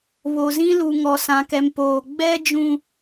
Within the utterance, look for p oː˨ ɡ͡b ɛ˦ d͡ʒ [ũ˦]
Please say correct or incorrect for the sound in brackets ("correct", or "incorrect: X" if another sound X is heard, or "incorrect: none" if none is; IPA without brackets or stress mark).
correct